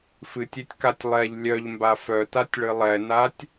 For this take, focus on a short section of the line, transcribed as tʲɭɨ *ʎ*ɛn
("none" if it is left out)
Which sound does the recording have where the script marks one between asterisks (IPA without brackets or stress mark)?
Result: lˠ